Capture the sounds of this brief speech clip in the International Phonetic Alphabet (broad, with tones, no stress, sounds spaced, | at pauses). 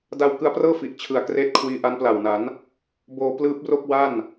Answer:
d a˧ w k ɯ˧ a̯ p r ɤː˥˩ f i˨˩ ʔ t͡ɕʰ ɯ˨˩ a̯ k r eː˦˥ t̚ kʰ w iː˧ ʔ a˦˥ n p l a˨˩ w n a˩˦ n | b oː˧ p l ɯː˦˥ p̚ r o˥˩ k̚ w a˥˩ n